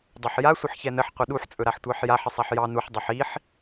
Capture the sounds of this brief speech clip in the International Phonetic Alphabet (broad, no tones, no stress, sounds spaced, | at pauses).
dˤ ɵ ħ j a sʷ ə ħ ç ɛ n ə ħ qʷ ə ɗ u ħ t͡sʼ ɵ ɾ a ħ tʷ ɑ ħ j a ħ ə sˤ a ħ j ɑ n u ħ dˤ ɛ ħ i ħ